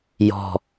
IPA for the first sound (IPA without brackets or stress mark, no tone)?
j